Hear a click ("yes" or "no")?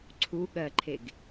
yes